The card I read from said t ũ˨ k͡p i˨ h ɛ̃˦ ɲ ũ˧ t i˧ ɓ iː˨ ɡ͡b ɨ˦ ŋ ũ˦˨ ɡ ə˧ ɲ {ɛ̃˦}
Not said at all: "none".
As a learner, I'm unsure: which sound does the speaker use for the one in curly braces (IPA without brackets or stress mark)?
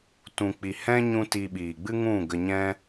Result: ɛ̃˦